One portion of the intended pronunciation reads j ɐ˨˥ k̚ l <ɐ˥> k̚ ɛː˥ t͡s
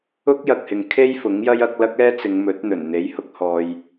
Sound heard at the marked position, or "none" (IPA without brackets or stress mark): ɐ˥